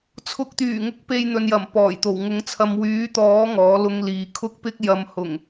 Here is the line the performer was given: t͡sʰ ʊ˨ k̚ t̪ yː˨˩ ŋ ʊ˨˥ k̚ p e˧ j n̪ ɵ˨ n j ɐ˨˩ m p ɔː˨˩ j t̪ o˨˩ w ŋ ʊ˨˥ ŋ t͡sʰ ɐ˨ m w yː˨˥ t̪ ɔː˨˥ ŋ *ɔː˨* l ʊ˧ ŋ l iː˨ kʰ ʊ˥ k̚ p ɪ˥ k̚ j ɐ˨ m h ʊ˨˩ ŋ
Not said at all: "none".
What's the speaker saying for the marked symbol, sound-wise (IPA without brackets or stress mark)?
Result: ɔː˨˥